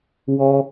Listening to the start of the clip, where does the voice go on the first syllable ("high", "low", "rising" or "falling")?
high